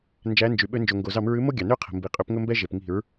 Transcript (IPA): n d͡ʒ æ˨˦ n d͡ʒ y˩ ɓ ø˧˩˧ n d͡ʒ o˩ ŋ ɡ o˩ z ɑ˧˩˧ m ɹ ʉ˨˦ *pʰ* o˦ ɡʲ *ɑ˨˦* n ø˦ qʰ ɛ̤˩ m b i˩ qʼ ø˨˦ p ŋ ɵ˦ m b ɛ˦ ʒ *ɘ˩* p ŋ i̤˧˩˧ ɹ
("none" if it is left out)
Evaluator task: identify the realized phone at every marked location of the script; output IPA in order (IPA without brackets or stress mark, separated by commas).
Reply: m, ɑ˩, e˩